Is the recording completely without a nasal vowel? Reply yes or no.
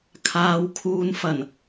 yes